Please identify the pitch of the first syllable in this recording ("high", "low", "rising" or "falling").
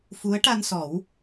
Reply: rising